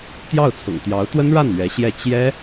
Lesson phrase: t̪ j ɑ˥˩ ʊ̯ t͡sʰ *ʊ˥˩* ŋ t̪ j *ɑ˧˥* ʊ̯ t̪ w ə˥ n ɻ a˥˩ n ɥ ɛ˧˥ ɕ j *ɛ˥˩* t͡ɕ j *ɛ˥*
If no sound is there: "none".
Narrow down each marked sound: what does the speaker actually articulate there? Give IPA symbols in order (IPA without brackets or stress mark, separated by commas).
ʊ̰˨˩, ɑ˧˥, ɛ˥˩, ɛ˥